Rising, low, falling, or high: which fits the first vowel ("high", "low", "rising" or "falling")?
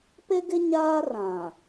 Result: high